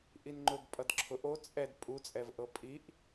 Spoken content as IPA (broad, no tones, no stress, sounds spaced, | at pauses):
ʔ i n ŋ͡ǃ ʊ ɡ pʼ ʌ d ǁʰ ʊ ʔ o t͡sʼ ɛ d pʼ u t͡sʼ ɛ v ʔ ɤ pʼ i ʔ